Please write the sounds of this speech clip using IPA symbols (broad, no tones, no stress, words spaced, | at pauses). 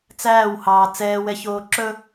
t͡sæːwhɑː t͡sɛːwɛçoː ǁɵ